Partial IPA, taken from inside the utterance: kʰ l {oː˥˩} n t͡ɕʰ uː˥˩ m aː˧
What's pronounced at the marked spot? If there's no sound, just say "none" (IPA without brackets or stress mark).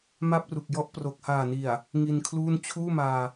uː˥˩